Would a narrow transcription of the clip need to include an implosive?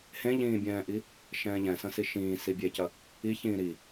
no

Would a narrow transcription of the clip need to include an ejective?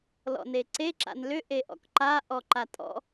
yes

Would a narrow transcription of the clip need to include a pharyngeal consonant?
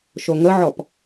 yes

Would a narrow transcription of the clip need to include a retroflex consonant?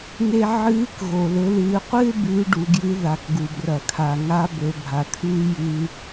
yes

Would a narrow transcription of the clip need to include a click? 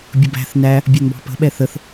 no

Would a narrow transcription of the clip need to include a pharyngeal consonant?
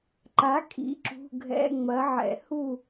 yes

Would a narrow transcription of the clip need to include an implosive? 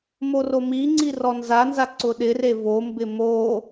yes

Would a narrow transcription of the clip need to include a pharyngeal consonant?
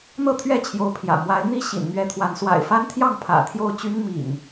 no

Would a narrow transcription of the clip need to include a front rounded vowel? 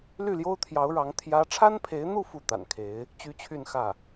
yes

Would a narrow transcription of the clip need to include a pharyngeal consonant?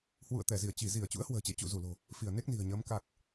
no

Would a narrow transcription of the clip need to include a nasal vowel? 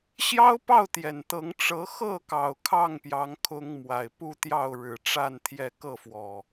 no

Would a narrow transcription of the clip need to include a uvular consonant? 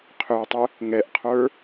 yes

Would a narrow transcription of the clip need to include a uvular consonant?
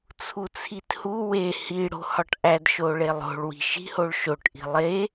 no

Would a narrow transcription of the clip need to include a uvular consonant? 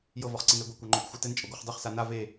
yes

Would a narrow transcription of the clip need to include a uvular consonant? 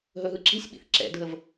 no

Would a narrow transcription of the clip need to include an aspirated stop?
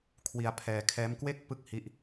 yes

